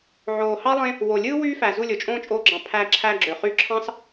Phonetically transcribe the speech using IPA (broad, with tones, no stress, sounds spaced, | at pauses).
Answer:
ʕ oː˨ h ɑ˦ lˠ ẽ˦ | w o˨ lʲ ɯː˦ w yː˦ f æ˨ z u˦˨ lʲ o˨ t͡ʃʼ õː˦ t͡ʃʼ oː˧ ɡ͡ǁ ɑ̃˨ pʰ æ˧ ǁʰ æ˧ ɡ͡ǁ ø˨ χ y˧ ǁʰ ɑ̃˦ s